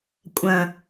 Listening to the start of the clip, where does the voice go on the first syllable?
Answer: low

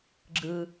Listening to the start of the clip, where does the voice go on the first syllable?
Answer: low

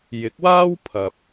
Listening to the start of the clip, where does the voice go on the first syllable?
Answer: rising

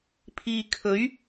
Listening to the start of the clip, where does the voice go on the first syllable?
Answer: low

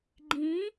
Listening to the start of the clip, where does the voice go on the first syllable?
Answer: rising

